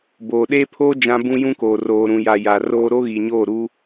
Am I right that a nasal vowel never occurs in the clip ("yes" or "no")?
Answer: no